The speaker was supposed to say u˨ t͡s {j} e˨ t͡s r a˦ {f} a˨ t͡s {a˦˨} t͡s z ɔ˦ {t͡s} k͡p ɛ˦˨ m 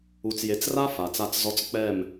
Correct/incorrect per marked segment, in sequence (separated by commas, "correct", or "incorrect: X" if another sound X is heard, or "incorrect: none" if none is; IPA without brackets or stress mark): correct, correct, correct, correct